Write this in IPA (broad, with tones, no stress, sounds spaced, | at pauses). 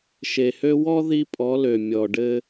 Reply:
ʃ e˨ h ø˦ w ɔ˦ ð i˦ pʼ ɔ˨˦ l ø˨ mʲ ɔ˨ ɖ ɘ˦